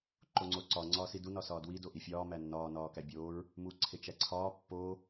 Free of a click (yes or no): no